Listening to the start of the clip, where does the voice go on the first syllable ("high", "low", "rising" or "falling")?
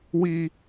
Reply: high